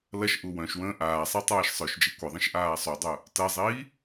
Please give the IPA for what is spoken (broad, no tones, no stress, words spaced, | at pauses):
lɐʃʔu wœ̃ʃwə̃ː ʔaːsˤi tˤaːʃsˤœʃd͡ʒi kʷɐðˤə̃ʃ ʔaːsˤodˤœ | tɐzˤiː